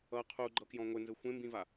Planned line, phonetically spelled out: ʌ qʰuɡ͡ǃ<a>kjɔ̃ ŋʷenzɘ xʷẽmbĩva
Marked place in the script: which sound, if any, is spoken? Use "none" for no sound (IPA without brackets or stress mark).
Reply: ʌ